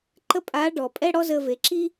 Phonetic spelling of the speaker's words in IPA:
ǃ ə˥ pʼ a˧˥ ɖ ɔ˩ pʼ ɛ˥ ɽ ɔ˥ z ə˧ v e˩˧ ǁ i˥

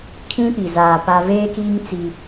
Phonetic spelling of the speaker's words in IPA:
kʰ ĩ˦ p i˨ z aː˨ p a˦ v eː˦ k iː˦ ŋ t͡s i˦

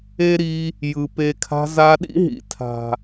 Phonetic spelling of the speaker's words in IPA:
e˦ ɾ i˧ | j ɯ˨ p e˧ kʰ a̤˧ z a˧ ɗ ḭ˦ ɦ ḭ˨ tʰ a̤˨

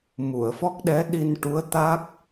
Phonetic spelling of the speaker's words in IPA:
m u˨˩˨ ə̯ f ɔ˦˥ k̚ ɗ ɛ˧˥ ɗ i˧ n ʈ u˧˥ ə̯ t̪ a˦˥ k̚

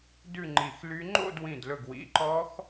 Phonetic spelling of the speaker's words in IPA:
d ʉ˥˧ ŋ͡ǃ i˧˩ x l y˦˥ ŋ͡ǃ o̰˥˧ d w ĩ˧˩ d l ɵ˧˩ ɡ w ḭ˩˧˩ ǃ ɔ˦˥ x

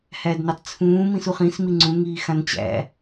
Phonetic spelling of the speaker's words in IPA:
h æ d n ɛ tˤ t͡sʰ ũː m ĩ s u χ ĩ s m i ŋ͡ǀ ũ ŋ iː x ã n t͡ɕ æ̰

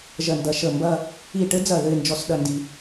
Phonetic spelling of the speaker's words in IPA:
ʒ ɜ˧˩ n d ɐ˧ ʃ ə˧˩ m b ɐ˥˧ | i˧˩ ʈ ɘ˥ d͡z ɐ˧˩ ð ɘ˥˧ ɪ̯ n d͡ʒ ɔ˥˧ s ɗ ɐ˥˧ n d i˧

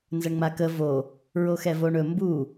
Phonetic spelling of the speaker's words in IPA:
n z ə ɳ ŋ͡m a k ə v o | ɹ o x ɛ v o ɳ ɵ m b u

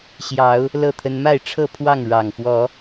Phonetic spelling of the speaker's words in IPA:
ɕ j ɑ˨˦ ʊ̯ | l ɤ˥˨ t̪ʰ ə˦ n m a˥˨ ɪ̯ ʈ͡ʂʰ ɤ˥˨ pʰ w ɑ˥˨ ŋ ɻ ɑ˨˩ ŋ f w ɔ˨˦

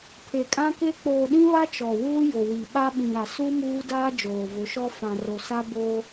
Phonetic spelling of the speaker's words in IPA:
pʰ e˨ kʼ ã˦ k e˦ k͡p oː˨ ɗ ĩ˦ β a˦ t͡ʃ ɔ˨ w uː˦ j o˨ w i˨ ɓ a˦ ɓ ĩ˨ ɾ a˨ s u˦ m uː˦ d aː˦ d͡ʒ oː˨ v ʊ˨˦ ʃ ɔ˦ f ã˨ r o˨ s a˦ b oː˦

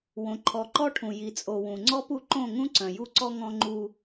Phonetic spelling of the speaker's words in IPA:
w õ˨ ǃʰ ɔ˨ ǃ ɔ˦ ʈʰ ũ˨ j i˨ t͡sʼ o˨ w ũ˨ ŋ͡ǀ ɔ˦ p u˦ ǃ õ˦˨ ŋ ũ˦ ǀ œ̃˨ j u˦ ǀ ɔ˦ ŋ ɔ̃˦ ŋ͡ǃ u˦

